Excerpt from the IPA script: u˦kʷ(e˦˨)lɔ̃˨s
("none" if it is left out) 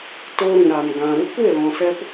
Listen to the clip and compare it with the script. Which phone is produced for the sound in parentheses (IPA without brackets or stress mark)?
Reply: e˦˨